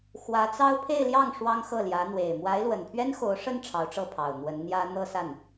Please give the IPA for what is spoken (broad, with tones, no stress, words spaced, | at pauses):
xwä˧˥t͡sɑ˥ʊ̯ pʰe˥˧ɪ̯ljɑ˥˩ŋ ʂwɑ˥ŋxɤ˥˩ljä˧˥ n̪we˨˩ɪ̯ mwa˧˥ɪ̯lwə˨˩npʰɥɛ˥nxo˧˥ʊ̯ ʂə˥n ʈ͡ʂʰɑ˧˥ʊ̯ʈ͡ʂɤ˥˩pʰɑ˨˩ʊ̯ n̪wə˧˥nn̪jä˥ n̪ɤ˥˧sa˥˩n